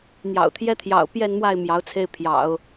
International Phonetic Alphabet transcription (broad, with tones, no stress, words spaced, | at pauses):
n̪jɑ̰˨˩ʊ̯t̪ʰjɛ˥t̪ʰjɑ̰˨˩ʊ̯ pjɛ˥˧nmwa˥˩ɪ̯ mjɑ˧˥ʊ̯t͡sʰe˥˩ɪ̯ pʰjɑ̰˨˩˦ʊ̯